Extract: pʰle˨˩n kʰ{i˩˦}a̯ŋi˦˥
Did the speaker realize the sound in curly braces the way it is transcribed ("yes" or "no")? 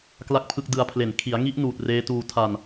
yes